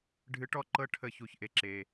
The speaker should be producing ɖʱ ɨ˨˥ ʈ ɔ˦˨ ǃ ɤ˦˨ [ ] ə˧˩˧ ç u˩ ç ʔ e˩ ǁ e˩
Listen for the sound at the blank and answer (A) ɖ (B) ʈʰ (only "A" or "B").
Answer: B